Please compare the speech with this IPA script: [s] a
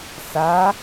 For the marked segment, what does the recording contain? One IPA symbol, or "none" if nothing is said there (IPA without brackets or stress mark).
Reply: s